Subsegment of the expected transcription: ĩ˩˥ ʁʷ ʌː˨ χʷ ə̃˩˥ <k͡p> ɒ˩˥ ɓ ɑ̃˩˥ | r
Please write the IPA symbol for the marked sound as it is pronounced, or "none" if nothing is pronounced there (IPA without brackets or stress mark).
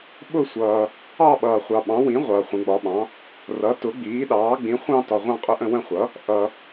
ɡ͡b